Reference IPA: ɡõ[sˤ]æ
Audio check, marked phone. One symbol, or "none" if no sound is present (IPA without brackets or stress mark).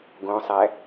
sˤ